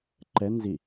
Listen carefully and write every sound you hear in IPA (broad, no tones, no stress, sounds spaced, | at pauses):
ǃ ɛ n z i